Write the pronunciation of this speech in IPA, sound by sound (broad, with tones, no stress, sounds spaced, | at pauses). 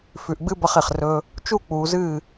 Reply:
f ʉ˨ ʔ ɡ͡b ɨ˧ b ɐ˧ χ e˨ χ r ɵ˧ | t͡ʃ u˦˨ k͡p uː˨ z ɨː˦˨